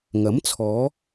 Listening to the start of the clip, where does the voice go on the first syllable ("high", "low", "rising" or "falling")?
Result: rising